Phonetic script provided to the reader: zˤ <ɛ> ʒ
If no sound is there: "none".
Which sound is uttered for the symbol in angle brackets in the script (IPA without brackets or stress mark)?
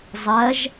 ɜ